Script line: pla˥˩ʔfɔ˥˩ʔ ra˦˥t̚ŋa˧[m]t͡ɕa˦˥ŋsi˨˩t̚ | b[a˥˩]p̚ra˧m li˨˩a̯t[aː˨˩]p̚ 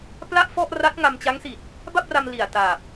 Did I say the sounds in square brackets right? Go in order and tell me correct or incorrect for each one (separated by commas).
correct, correct, correct